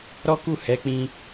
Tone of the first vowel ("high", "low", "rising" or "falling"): high